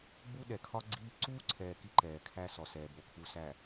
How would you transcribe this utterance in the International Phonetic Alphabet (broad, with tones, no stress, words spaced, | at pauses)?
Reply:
ɡ͡bu˦ɗɛ˨kʰɒ˦ɡ͡ǀiː˦ ǀuː˦ǀʰɛː˨ ki˦ǃɛː˨kʰæ˦sɔ˨ sɛː˨bo˨kʰu˨sæ˨